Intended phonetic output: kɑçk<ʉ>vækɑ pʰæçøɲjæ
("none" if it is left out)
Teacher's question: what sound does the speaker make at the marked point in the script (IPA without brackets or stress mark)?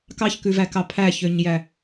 ʉ